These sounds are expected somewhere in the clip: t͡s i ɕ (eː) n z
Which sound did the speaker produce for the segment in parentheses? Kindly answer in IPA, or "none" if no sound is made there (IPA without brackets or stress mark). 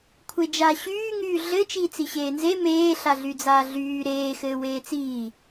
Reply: eː